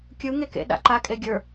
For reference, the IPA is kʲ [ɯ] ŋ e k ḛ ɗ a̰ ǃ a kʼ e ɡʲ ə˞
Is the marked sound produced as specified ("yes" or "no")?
yes